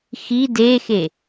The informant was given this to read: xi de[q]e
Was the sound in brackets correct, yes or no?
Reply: no